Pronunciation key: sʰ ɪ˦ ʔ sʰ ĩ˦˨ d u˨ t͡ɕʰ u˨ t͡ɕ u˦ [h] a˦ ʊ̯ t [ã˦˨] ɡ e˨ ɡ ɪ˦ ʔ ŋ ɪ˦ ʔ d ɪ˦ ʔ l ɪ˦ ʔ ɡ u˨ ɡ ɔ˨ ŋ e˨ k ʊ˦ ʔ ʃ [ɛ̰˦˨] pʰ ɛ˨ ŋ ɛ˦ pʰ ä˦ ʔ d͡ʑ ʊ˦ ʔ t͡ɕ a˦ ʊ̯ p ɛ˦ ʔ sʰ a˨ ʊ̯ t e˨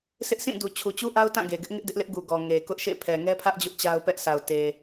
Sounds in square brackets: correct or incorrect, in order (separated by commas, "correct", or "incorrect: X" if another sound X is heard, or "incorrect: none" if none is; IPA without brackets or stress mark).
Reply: incorrect: ʔ, correct, incorrect: ḛ˦˨